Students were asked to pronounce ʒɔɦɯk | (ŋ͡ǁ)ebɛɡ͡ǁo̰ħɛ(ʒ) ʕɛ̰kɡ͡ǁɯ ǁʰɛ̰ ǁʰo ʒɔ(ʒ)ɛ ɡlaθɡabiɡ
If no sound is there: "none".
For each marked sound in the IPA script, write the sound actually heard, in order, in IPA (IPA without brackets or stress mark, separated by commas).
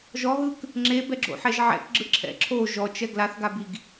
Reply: ŋ͡ǁ, ʒ, t͡ʃ